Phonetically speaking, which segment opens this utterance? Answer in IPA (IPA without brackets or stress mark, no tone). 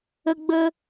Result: ə